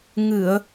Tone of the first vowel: low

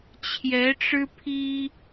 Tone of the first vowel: rising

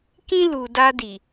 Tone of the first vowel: high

